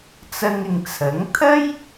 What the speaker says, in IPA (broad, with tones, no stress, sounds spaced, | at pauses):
t͡s ɐ˧ ŋ ɪ˨ ŋ t͡sʰ ɐ˨˥ ŋ t̪ʰ ɐ˥ j